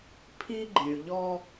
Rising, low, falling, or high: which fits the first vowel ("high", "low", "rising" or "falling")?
high